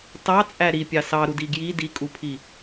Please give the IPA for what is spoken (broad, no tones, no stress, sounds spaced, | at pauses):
t ɑ t͡sʼ æ ɾ i pʲ ɑ s ɑ ɾ u d i ɡ j i d i kʼ u pʰ i